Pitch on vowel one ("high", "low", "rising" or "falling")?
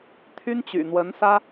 high